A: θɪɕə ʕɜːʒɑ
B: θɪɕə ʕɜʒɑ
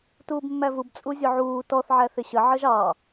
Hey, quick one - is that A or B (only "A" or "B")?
B